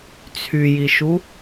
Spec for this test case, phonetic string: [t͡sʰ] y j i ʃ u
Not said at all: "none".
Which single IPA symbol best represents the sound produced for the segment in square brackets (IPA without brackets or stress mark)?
t͡sʰ